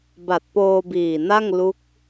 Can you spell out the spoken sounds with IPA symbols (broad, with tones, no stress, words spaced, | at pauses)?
ba˨˩t̚poː˧biː˨˩na˥˩ŋ lu˦˥k̚